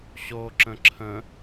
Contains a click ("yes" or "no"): yes